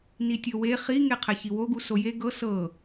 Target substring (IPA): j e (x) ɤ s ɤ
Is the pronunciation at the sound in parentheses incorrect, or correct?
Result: incorrect